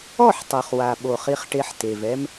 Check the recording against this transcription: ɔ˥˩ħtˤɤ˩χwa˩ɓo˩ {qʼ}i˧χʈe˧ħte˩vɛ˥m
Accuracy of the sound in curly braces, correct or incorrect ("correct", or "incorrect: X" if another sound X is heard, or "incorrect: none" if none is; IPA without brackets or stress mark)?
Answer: incorrect: χ